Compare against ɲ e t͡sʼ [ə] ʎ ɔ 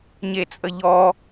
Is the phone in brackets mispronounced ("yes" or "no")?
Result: no